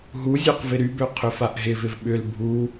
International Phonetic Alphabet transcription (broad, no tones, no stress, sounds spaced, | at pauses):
ɦ u zʲ ø q v ɪ ɾ y b ø qʰ ʏ f a ʔ ɦ ɪ v ɪ v ɓ ʏ l bʱ u